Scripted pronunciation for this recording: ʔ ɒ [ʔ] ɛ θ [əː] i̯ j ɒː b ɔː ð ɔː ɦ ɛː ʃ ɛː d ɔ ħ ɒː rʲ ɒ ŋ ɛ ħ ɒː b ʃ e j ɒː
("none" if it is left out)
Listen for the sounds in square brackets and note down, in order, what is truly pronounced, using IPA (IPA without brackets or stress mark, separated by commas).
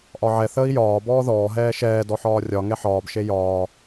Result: ʕ, əː